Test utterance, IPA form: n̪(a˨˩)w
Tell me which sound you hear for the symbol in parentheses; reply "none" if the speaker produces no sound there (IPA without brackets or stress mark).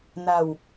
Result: a˨˩